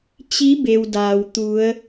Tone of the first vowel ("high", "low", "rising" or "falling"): rising